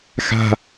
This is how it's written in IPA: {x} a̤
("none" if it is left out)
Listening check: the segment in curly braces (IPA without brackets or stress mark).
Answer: x